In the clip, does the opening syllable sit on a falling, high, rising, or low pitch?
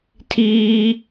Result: high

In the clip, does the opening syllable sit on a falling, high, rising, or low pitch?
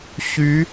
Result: rising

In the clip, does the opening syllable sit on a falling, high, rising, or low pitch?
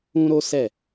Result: high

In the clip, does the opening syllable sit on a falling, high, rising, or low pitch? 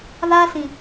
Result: high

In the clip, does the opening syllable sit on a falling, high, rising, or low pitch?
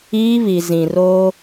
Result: high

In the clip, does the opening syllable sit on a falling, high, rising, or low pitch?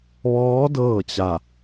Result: rising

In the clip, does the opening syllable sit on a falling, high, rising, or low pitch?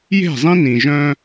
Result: falling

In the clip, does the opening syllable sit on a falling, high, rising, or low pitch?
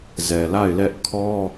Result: low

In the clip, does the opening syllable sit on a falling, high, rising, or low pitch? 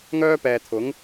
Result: high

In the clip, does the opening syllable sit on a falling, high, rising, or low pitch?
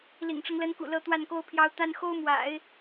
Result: low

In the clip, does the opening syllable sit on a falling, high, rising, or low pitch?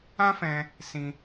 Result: high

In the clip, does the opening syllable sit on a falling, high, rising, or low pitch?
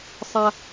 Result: low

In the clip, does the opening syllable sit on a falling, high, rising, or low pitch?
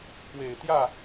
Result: low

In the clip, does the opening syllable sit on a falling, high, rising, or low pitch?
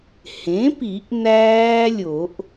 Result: rising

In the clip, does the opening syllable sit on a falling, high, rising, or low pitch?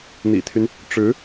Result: low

